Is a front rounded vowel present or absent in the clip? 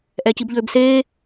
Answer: present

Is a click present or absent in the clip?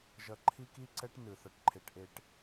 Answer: present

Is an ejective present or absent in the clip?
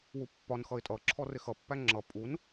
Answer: present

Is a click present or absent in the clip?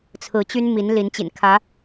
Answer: absent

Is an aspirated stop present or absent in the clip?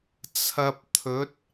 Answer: present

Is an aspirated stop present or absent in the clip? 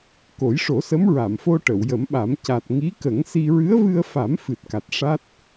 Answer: absent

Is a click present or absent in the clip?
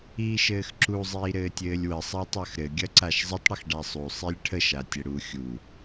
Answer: present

